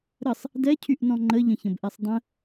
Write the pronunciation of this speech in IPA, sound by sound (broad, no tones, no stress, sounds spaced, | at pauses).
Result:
ɾ ə sˤ | d ɛ cʰ y ʔ n ɔ̃ ŋ͡ǃ ə ʎ ə̃ ç ə̃ b ʔ ɛ sˤ dˤ ə̃